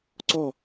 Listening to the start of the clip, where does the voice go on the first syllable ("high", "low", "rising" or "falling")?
falling